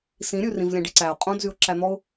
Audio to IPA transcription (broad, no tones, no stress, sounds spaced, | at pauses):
s ĩ ɾʲ ʉ r ĩ v lʲ ɛ̃ ɖ i ǀ æ ʊ̯ qʼ õ d z y ʊ̯ ǁ æ n̪ ɔ ʊ̯